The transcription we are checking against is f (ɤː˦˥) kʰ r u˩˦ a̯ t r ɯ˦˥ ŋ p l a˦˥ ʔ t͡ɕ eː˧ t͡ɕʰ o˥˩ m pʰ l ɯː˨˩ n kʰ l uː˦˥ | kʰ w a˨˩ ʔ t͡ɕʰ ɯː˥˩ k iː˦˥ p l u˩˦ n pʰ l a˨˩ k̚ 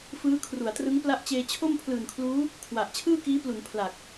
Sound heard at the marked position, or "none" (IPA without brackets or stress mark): ɯː˦˥